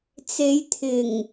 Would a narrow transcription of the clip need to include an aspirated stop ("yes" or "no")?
yes